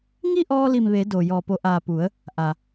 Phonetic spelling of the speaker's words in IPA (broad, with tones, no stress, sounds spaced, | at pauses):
ŋ i˥˨ ʔ ɔː˧ l i˧˩ m ʋ e˩˧ d o˩ j ɔː˧˩ p o˧ ʔ aː˧˩ p u˩˧ ə̯ | ʔ a˩